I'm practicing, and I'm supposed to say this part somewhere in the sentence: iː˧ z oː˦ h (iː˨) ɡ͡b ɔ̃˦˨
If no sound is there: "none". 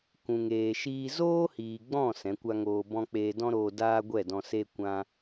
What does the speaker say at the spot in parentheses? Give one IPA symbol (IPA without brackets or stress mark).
iː˨